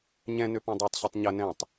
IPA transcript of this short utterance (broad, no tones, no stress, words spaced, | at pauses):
ɲɛ̃ nøpɔ̃dˤætˤ ɕɐtˤɲɐ nɛ̃tˤ